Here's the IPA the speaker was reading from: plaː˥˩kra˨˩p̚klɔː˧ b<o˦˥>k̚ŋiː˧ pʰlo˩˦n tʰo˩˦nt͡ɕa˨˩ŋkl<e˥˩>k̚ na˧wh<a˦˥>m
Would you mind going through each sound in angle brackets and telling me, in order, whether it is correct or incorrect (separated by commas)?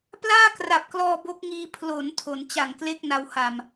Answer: correct, correct, incorrect